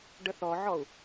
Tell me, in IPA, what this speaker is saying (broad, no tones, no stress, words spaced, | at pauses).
ɖəθɔʕɔu̯